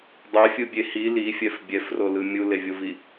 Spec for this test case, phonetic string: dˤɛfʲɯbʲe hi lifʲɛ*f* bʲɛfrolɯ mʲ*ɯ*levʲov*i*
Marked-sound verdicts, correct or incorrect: correct, incorrect: u, correct

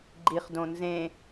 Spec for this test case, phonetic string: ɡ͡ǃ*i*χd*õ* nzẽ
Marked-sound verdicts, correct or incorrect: correct, correct

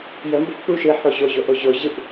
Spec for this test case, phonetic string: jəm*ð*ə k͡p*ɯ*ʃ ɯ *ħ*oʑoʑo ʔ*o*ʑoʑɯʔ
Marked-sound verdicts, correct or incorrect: incorrect: b, incorrect: u, correct, correct

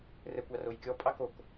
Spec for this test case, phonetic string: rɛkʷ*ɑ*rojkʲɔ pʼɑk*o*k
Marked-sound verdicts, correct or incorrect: correct, correct

